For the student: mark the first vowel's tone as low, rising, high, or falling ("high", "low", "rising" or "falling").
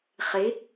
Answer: rising